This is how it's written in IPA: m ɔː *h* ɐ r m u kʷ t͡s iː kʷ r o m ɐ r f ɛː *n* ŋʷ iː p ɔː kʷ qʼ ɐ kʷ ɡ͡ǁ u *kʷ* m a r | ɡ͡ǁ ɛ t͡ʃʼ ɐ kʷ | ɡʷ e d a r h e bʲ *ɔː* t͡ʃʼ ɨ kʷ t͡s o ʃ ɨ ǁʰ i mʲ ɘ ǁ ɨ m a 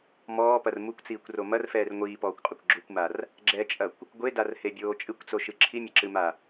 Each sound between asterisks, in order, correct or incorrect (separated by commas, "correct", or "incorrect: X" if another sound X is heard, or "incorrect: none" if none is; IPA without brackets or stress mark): incorrect: p, incorrect: r, correct, incorrect: oː